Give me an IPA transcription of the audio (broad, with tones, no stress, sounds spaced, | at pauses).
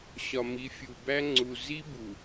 ɕ ɒ˨ m i˨˦ fʲ u˨ b æ˦ ŋ͡ǀ u˨ z i˦ b u˨